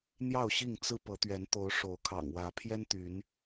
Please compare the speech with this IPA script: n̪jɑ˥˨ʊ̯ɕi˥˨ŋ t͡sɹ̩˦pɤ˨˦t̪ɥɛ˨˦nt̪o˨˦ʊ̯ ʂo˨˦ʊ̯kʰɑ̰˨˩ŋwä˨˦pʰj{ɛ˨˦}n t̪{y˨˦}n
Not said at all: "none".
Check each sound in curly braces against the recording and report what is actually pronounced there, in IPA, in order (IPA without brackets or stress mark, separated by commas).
ɛ˦, y˨˦